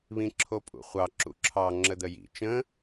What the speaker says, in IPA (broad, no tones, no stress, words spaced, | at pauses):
βĩǁʰopʼṵχʷɑ ǁṵǁʰɑ ŋ͡ǁəd̪əjḭ t͡ʃə̃